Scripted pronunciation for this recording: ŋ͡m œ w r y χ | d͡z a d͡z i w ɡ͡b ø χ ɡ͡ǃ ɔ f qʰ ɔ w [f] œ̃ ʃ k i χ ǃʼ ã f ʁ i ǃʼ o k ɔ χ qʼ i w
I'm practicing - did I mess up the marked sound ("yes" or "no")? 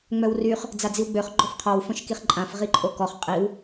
no